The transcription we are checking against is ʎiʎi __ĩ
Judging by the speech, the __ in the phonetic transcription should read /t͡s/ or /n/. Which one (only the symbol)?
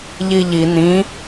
n